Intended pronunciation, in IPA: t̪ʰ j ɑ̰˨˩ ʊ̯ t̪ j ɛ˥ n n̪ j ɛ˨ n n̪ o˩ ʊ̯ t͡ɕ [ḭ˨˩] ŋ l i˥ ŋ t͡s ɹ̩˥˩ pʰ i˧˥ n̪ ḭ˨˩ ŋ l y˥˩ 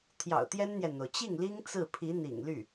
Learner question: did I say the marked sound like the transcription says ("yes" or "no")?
no